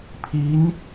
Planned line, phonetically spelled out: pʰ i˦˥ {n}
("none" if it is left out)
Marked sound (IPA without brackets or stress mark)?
n